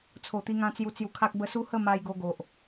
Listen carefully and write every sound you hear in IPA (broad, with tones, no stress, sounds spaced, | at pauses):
t͡sʰ o˨˩ t̪ i˧ ŋ ã˧ t͡s j u˧ t͡s j u˧ kʰ a˦ k̚ b ə˦ s u˦ h ə˥˧ m a˧ j ɡ o˧ ɡ o˨ ʔ